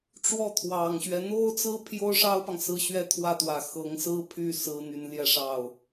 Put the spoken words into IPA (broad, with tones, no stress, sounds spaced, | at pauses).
ʈ͡ʂ w ɔ˥˩ t̪ʰ w ɑ˨˩ ŋ ɕ ɥ ɛ˦ n̪ o˥ ʊ̯ t͡s ɹ̩˥ pʰ j o˥ ʊ̯ ʂ ɑ˥ ʊ̯ p ɑ˨ ŋ s ɹ̩˥˩ ɕ ɥ ɛ˥ t̪ʰ w ä˥˩ t̪ w ä˨˩ x ɤ˧˥ ŋ s ɹ̩˥ pʰ y˥˩ s ɹ̩˥ n̪ y˧˥ n l j ɛ˥ ʂ ɑ˥˩ ʊ̯